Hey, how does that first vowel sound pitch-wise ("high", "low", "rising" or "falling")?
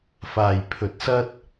low